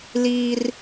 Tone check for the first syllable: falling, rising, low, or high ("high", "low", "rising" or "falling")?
high